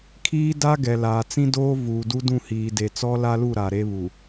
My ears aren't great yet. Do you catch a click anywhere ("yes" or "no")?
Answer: no